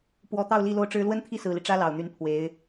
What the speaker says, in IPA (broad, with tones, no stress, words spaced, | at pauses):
pwɔ˧˥t̪ɑ˥˧ʊ̯ li˥˧ lo˥˩ʊ̯ʈ͡ʂɻ̩˥ lwə˥nt̪ʰi˥˩sɹ̩˨˩li˦ ʈ͡ʂä˥lɑ˨˩ʊ̯n̪y˧˥n pʰwe˧˥ɪ̯